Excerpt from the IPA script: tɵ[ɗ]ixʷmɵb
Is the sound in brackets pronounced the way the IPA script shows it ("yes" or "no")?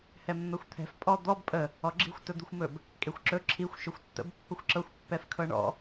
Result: no